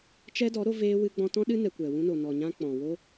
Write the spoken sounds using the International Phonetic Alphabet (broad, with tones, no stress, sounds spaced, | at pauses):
t͡ʃ ɛ˦ d ɔ˨˦ ɾ o˦ v eː˦ w ɨ˧ ɡ͡b ɔ̃˧ t ɔ̃˦ ɗ ɨ˦ n ɛ˧ kʷ ɛ˨ w ũ˦ n o˨ n ɔ˨ ɲ ã˦ k͡p ɔ̃˨ w o˦